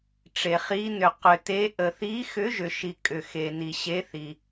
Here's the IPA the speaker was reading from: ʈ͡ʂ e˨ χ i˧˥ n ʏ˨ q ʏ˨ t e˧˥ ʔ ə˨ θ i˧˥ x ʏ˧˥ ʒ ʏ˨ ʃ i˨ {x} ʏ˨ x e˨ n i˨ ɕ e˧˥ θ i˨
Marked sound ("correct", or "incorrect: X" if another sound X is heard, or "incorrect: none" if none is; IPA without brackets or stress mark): incorrect: kʼ